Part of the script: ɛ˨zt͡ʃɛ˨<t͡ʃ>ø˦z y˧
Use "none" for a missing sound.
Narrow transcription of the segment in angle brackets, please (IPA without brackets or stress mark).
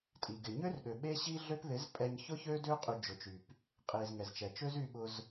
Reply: t͡ʃ